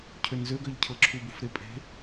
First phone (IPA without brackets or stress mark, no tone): cʰ